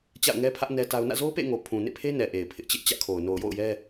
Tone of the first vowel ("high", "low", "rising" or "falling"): falling